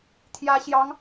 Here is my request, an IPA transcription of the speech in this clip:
t̪ʰ j ä˧˥ ɕ j ɑ˧˥ ŋ

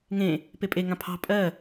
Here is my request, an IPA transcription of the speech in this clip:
ŋ ẽ | p e pʼ e ŋ ã pʰ ɑ̤ pʼ ɜ

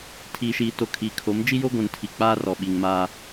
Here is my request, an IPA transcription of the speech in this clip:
tʰ iː˨ ʃ iː˨ t o˨ kʰ i˨ kʰ o˨˦ m d͡ʒ i˦ j o˦ ɡʷ ũ˨ n tʰ i˨ k͡p aː˦ r ɔ˨ ɓ i˨ ŋ m aː˦

